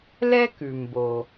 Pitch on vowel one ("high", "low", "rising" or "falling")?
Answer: high